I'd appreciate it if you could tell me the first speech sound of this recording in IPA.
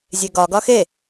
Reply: zʲ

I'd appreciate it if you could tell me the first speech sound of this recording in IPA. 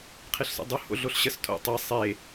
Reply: qʰ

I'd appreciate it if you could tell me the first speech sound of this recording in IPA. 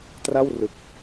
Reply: t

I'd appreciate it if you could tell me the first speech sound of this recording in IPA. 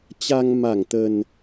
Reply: t͡ɕ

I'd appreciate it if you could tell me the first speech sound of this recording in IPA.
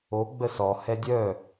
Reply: o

